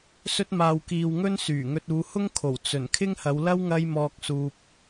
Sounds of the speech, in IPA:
s ɵ˥ t̚ m aː˧ w k iː˧ w ŋ ɵ˥ n s yː˨˩ ŋ ɵ˧ t̚ uː˨˧ h ʊ˥ ŋ kʰ o˨˩ w t͡s ɵ˨˩ n kʰ ɪ˥ ŋ h ɐ˨˧ w l ɐ˥ w ŋ ɐ˥ j m ɔː˧ k̚ s uː˨ p̚

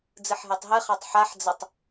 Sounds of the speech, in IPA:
d͡z ɨ ħ ɦ e tˤ ɦ ɨ χ a tˤ ħ a ħ d͡z ɘ tˤ

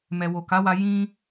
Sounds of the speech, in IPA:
m ɛ˨ w o˨ k a˨˦ w a˧ j ĩ˦

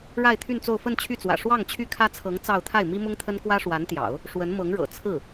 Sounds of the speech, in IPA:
ɻ a˥˧ ɪ̯ t̪ʰ y˥˧ n t͡s o˥˧ ʊ̯ f ə˥˧ n t͡ɕʰ y˥˩ t͡s w ä̰˨˩ ʂ w ɑ˥˩ ŋ t͡ɕʰ y˥ kʰ ä˥ t͡sʰ ɤ˧˥ ŋ t͡s ɑ˥˧ ʊ̯ t̪ʰ a˥˩ ɪ̯ m i˥ m ʊ˥ ŋ t̪ʰ ə˥ n k w ä˥ ʂ w a˧˥ n t̪ j ɑ̰˨˩˦ ʊ̯ | ʂ w ə˧˥ n m ɤ˧˥ ŋ ɻ ɤ̰˨˩ t͡sʰ ɹ̩˥˩

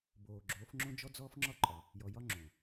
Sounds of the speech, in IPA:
b oː˨ ɡ͡ǁ oː˨˦ f ŋ͡ǁ õ˦ d͡ʒ ɔ˦ d͡z ɔː˦ f ŋ͡ǁ ɒ˦ ǃʼ ɒ˨ | j ɔ˨ j ɒ˦ ŋ͡ǁ õː˨

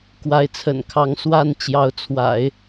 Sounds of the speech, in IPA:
k w a˧˥ ɪ̯ t͡sʰ ə̰˨˩ n kʰ ɑ˧˥ ŋ s w a˥˩ n t͡ɕ j ɑ˧˥ ʊ̯ t͡sʰ w a̰˨˩˦ ɪ̯

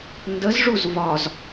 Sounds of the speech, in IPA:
n d ə z ʐ u z v ɒ z

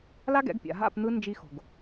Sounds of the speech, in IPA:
l a˦ ɡ ɛ̰˨˦ ɡ pʲ a̰˨ ɦ a̰˦˨ p n̪ ɯ˧ n d͡ʒ i˧ x o̤˨ ɡ

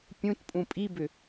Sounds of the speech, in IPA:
pʲ ũ t pʼ ũ pʼ i b ʏ

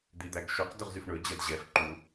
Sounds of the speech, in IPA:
d̪ i d̪ æ ɡ ʃ ɵ q d ɵ ʁ z y f ɳ ɵ d͡ʑ ɛ d ʑ ɛ f ǃ u

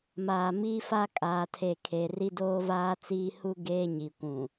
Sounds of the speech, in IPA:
m aː˨ m iː˦ f a˦ kʼ aː˨ tʰ e˨ kʰ e˨ r i˦ d oː˦ v aː˦ t͡s iː˦ h u˦ ɡ eː˦ ɲ i˨ kʷ ũ˨

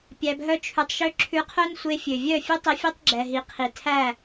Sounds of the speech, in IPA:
pʲ æ˧ b ɦ œ˦ t͡ʃʰ ʉ˧ tˤ ʃ ø˦ ǁʰ ʉ˧ qʰ œ˦ n sʷ e˧ fʲ ø˨ vʲ œ˦˨ fʲ ʉ˦ tˤ i˧ fʲ ɛ˦ tˤ ɡ͡ǁ ɛ˨ ɦ i˨ qʰ i˨ tʰ æ˦˨

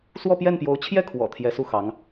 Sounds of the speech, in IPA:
s w ɔ˥˧ p j ɛ˥˩ n p j o˧˥ ʊ̯ t͡ɕʰ j ɛ˥˩ kʰ w ɔ̰˨˩ t̪ʰ j ɛ˧˥ s u˥˩ x ɑ˧˥ ŋ

